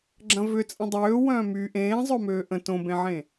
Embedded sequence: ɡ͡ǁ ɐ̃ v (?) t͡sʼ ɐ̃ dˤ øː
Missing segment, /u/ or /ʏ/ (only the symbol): ʏ